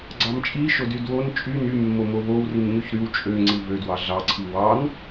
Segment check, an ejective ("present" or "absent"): present